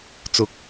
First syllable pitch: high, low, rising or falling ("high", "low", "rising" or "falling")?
rising